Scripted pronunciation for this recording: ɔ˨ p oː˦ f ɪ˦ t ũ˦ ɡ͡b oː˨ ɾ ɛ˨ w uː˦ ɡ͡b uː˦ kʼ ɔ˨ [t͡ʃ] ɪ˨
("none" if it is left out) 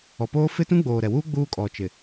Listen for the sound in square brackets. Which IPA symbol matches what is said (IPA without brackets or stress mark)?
t͡ʃ